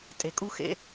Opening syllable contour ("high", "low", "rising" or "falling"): low